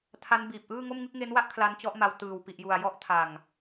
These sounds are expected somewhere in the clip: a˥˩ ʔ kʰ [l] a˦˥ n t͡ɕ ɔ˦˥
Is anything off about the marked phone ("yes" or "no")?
no